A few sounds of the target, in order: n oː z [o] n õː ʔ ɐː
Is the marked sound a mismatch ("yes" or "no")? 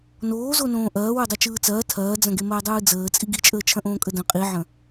no